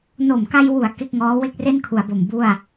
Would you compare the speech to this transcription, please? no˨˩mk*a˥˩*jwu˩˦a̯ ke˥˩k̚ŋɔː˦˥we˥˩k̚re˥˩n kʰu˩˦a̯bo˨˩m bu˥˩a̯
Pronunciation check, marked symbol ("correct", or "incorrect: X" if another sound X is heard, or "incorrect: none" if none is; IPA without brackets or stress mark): incorrect: a˧